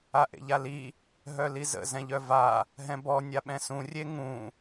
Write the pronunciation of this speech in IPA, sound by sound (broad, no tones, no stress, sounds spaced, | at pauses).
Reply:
a ʔ ḛ ʎ a l i | ɦ œ l i z ə̰ z ɛ̃ ʎ œ v a | ɦ ɛ̃ b ɔ nʲ a ɓ ɛ̃ s ũ rʲ e ŋ ũ